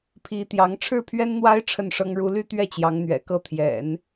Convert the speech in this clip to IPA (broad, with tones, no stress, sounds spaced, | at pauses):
pʰ i˧˥ t̪ j ɑ˧˥ ŋ ʈ͡ʂʰ ɻ̩˥˩ pʰ ɥ ɛ˥ n n̪ w a˥ ɪ̯ ʈ͡ʂʰ ə˥˩ n ʂ ɤ˥ ŋ ɻ u˥ l y˥ t̪ ɥ ɛ˥˩ t͡ɕ j ɑ˧˥ ŋ n̪ ɥ ɛ̰˨˩ k ɤ˥˩ t̪ʰ j ɛ̰˨˩˦ n